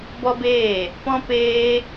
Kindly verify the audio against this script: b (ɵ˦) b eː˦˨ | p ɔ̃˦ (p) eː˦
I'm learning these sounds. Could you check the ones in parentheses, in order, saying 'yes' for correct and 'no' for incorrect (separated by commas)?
no, yes